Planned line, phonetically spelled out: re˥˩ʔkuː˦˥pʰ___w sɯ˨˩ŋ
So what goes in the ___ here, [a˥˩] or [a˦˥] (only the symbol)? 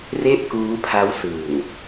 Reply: a˦˥